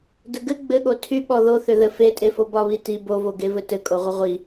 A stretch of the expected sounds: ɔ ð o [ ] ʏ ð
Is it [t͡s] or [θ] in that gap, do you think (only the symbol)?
θ